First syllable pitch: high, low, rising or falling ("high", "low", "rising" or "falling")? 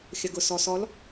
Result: low